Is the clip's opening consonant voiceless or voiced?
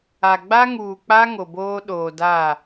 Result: voiced